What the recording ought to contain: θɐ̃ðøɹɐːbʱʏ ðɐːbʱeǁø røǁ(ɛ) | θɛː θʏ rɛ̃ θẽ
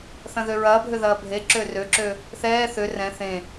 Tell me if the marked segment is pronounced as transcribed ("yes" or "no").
no